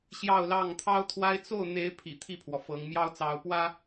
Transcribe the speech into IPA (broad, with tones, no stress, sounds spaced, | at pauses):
ɕ j ɑ˥˧ ʊ̯ l ɑ˥˩ ŋ t̪ʰ ɑ˥ ʊ̯ t̪ʰ w a˥ ɪ̯ t͡s o˥˩ ʊ̯ n̪ e˧˥ ɪ̯ pʰ ḭ˨˩ t̪ʰ i˥˩ pʰ w ɔ˩ f ɤ˧˥ ŋ m j ɑ˥ ʊ̯ t͡s ɑ˧˥ ʊ̯ p w ä˥